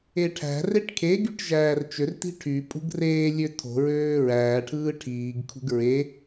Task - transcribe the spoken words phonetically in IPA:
eʈʰæ̤reʈ kʰeɡyʈ ʒæːrt͡ʃørti̤ ʈʰy pʼṳɡreːlʲø tʰo̤ɹøː ɹæːʈʰɯː ʈʰiːɡkʰṳɡ ɹe

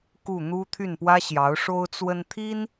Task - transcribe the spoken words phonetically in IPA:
ku˥˩n̪u˥ t̪ʰy˥˩npwä˥ɕjɑ˧˥ʊ̯ ʂo˥ʊ̯t͡swə˥n t̪ʰi˥n

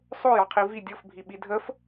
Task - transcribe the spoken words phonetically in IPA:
sˤojɑqʰi vi dʲɤfbʱiɓi dʱəf

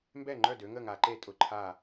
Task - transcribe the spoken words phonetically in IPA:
mbɛ˥˩ŋ͡ǃœ˥˩dø˨˦ŋə˥˩ ŋa˨˦ǃe˥˩ tʼʊ˥˩ǃʰa˥˩

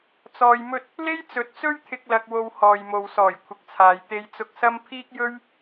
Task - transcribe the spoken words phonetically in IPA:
t͡sɔː˧jmɵ˥t̚ | le˥jt͡sɵ˨˥t̚t͡sɵ˥ɥt̪ʰɪ˧k̚ lɐ˧k̚wo˧w hɔː˨jmo˨wsɔː˨˩j kʷʰɪ˨k̚t͡sʰaː˨j t̪e˧jt͡sʊ˧k̚sɐ˥m pʰiː˥k̚jɵ˥ɥ

